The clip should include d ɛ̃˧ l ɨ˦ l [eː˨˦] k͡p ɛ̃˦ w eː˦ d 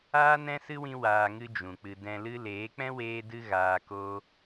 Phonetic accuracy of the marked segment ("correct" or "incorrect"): correct